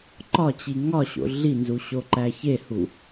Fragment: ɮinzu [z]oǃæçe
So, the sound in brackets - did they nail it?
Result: no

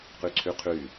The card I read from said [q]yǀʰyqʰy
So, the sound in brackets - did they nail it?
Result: yes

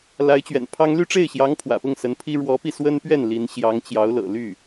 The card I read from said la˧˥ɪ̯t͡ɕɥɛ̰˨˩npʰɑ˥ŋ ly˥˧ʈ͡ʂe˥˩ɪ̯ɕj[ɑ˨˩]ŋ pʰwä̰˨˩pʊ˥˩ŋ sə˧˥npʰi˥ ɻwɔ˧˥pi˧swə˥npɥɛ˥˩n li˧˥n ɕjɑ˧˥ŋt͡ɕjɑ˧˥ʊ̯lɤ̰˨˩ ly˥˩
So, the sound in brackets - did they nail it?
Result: no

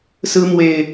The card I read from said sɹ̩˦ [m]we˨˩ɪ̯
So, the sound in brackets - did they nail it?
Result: yes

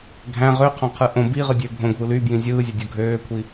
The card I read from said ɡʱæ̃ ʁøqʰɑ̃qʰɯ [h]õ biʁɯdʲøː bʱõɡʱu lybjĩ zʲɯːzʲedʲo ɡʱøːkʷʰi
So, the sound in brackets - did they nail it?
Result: no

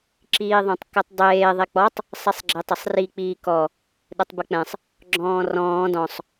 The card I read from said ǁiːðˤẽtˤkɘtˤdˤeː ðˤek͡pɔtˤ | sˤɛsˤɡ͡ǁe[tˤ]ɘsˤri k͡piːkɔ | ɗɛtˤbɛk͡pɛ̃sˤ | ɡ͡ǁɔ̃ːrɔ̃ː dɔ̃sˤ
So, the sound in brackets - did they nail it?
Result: yes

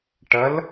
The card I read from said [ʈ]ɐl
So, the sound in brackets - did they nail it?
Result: yes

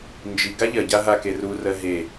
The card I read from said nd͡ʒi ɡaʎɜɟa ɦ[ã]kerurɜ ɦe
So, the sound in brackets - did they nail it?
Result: no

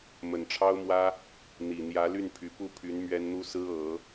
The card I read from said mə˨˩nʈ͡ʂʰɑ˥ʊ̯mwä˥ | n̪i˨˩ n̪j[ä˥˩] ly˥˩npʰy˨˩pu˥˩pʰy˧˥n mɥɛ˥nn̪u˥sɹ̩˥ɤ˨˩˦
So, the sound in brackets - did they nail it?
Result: no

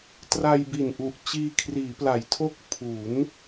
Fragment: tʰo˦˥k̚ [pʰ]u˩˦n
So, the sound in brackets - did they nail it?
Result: yes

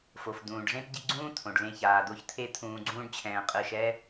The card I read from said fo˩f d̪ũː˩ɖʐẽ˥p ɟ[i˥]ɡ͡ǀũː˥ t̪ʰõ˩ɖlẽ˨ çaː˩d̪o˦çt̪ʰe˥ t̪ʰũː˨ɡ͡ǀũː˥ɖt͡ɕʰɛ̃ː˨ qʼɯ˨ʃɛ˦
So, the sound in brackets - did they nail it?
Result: no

